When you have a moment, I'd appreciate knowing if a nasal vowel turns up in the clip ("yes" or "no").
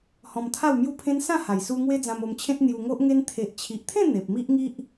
yes